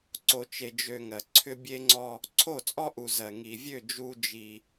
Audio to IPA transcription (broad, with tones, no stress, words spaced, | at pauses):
ǀo˨ t͡ʃe˨d͡ʒø˨ ŋɜ˨ ǀʰʏ˦bʲe˦ŋ͡ǀɔ˦ | ǀʰo˦˨t͡sʼɔ˦ʔu˨zɜ˨ ŋi˨vʲø˦˨ d͡ʒu˦ d͡ʒi˦